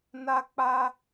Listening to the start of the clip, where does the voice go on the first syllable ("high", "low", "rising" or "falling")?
high